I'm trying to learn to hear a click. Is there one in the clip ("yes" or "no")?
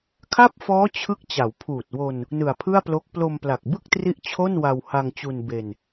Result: no